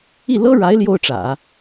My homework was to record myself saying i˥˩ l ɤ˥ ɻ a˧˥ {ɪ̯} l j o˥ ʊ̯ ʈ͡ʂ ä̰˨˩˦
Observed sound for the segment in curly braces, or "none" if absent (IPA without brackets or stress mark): ɪ̯